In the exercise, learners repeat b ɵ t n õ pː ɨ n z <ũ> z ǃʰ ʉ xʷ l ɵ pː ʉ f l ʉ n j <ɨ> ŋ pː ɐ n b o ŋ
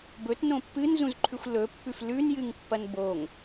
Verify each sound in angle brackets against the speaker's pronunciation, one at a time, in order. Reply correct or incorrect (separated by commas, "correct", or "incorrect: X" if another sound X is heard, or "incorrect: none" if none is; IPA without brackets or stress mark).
correct, correct